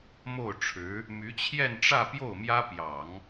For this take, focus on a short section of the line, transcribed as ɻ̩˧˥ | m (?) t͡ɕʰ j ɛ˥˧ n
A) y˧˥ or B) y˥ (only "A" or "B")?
A